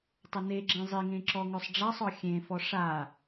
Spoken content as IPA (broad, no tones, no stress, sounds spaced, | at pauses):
tˤ ə n e ɡ͡ǁ ẽ zˤ i ŋ ẽ ǁ ɔ ŋ œ sˤ ɖ͡ʐ a sˤ ɔ xʲ ẽ f ɔ ʂ a